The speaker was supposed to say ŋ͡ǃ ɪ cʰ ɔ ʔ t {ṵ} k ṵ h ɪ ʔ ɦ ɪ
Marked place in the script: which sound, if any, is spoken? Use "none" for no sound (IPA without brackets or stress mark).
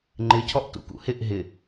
ṵ